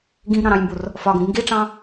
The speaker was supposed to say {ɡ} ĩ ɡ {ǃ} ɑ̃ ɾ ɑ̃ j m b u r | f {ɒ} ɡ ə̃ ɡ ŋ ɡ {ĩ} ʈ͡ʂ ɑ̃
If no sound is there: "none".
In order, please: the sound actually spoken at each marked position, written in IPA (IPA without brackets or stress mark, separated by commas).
ɡ, ɾ, ɒ, i